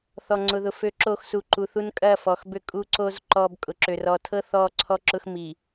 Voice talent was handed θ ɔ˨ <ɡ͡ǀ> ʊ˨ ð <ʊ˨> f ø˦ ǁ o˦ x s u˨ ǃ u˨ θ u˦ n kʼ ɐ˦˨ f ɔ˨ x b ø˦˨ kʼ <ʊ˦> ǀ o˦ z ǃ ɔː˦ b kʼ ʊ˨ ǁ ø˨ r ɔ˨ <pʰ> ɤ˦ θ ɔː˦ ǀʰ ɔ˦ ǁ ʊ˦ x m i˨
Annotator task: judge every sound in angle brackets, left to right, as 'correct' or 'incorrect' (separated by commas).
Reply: incorrect, correct, incorrect, incorrect